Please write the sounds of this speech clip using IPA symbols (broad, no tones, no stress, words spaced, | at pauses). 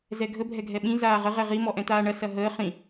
zɛɡʱə bʱɛɡʱɛɓĩ zaːʁə ʁɛʁi mɔʔɛ̃t̪aːɳɐ sɐɦəː χĩ